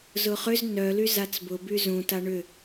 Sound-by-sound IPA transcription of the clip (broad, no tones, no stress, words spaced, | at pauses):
zʊχʏz nœlyz at͡sbʊ byzũ taɳʏ